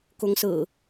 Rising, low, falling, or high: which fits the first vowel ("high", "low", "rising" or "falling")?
rising